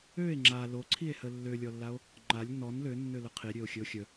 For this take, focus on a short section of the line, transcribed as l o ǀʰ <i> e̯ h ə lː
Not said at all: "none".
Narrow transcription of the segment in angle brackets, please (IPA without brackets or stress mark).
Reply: i